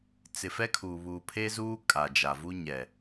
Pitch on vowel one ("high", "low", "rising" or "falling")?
low